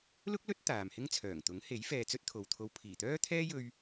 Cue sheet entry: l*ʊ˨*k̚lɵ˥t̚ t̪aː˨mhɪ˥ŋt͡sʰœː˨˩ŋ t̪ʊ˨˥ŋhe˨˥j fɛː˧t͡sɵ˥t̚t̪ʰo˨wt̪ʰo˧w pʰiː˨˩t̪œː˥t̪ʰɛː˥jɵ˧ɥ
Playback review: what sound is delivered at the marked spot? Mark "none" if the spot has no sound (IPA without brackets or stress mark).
ʊ˥